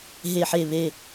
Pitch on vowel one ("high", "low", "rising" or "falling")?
falling